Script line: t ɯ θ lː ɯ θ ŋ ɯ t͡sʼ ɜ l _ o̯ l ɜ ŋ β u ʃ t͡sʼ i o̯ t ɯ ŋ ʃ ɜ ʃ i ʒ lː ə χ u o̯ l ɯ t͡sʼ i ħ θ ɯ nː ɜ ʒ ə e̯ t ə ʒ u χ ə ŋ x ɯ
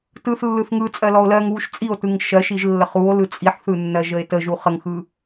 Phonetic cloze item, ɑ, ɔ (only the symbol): ɔ